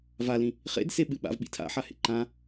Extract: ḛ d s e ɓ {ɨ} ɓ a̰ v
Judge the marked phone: correct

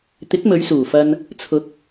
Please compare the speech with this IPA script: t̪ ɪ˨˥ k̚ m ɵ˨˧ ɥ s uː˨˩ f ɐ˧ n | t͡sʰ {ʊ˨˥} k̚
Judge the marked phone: correct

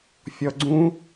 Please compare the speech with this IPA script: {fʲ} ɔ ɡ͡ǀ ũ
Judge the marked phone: correct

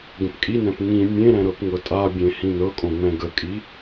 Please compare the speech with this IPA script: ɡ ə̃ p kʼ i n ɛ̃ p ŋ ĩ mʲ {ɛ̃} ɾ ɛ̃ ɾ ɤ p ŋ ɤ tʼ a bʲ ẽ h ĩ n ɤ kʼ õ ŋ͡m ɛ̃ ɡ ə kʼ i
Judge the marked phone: incorrect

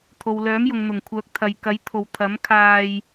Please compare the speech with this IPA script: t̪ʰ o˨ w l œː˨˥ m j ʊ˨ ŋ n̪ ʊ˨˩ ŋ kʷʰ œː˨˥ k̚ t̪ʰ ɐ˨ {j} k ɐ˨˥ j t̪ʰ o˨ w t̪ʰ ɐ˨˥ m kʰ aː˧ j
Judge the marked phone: correct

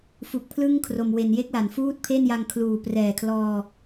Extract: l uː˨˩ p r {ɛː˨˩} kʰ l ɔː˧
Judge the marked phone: correct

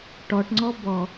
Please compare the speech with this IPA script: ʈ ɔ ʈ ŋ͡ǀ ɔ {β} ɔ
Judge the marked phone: incorrect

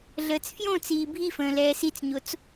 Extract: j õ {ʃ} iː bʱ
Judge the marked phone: incorrect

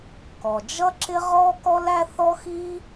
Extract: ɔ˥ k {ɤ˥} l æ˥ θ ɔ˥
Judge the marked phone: incorrect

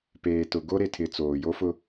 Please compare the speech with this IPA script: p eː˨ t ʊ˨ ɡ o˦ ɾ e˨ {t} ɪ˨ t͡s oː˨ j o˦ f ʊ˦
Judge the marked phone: incorrect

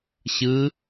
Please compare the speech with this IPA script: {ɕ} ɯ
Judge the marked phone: correct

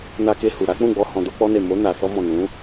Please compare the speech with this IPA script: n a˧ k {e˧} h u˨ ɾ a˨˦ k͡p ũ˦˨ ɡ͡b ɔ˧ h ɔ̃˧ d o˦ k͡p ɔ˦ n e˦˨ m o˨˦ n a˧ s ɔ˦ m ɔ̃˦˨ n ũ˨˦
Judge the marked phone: correct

